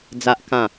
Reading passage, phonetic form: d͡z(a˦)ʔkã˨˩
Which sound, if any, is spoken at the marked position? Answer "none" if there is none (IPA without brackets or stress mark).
a˨